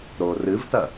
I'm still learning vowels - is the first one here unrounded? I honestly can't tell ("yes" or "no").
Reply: no